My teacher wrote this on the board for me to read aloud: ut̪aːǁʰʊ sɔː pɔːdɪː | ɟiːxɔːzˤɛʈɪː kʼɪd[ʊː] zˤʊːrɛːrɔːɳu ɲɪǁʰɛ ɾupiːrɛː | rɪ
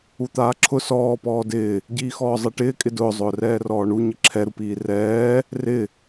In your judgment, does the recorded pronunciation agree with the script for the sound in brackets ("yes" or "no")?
yes